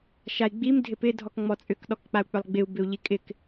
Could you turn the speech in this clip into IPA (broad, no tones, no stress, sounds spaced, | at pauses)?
ʃ a i̯ ɡ͡b i m dʱ ɪ p ɪ dʱ ɔ k ŋ͡m ɔ t͡sʼ ʏ k ɗ ɔ k k͡p a u̯ k͡p ʏ lˠ ɡ͡b ɪ u̯ b ɪ u̯ ʎ i kʼ ɪ k